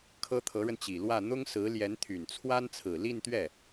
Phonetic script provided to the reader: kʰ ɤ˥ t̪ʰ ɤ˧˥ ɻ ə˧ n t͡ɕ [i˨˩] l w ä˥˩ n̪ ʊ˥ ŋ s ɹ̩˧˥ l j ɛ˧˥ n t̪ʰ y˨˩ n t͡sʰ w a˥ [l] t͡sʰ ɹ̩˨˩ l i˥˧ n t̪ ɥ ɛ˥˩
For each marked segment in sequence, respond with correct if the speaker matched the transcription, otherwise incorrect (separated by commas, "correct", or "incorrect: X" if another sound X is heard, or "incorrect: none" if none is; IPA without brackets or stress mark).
correct, incorrect: n